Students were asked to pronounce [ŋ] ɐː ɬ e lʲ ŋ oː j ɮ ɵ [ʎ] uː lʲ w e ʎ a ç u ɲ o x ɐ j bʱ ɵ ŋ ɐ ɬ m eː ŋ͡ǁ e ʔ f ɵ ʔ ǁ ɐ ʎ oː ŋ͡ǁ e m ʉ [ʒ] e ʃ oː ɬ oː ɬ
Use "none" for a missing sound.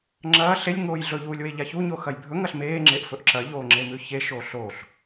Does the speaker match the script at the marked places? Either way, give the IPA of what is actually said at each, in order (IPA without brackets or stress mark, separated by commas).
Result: ŋ͡ǁ, ʎ, ç